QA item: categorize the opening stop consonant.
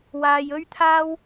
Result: aspirated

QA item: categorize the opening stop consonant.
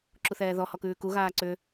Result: click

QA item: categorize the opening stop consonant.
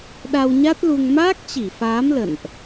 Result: implosive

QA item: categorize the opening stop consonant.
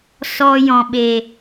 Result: implosive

